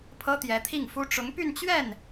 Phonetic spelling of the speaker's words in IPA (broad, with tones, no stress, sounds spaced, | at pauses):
pʰ ɤ˥ t̪ j ɛ˧˥ t̪ʰ i˥˩ ŋ f u˥ ʈ͡ʂ ʊ˧˥ ŋ p y˥˧ n t͡ɕ ɥ ɛ˥˩ n